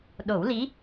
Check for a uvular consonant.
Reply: absent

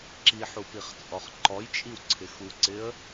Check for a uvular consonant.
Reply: present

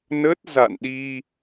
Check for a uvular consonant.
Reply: absent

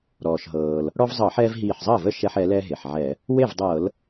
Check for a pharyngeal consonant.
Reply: present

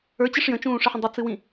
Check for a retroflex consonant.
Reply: present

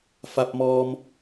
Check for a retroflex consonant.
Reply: absent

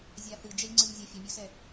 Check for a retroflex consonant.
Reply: absent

